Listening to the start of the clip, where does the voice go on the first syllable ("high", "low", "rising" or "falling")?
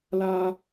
high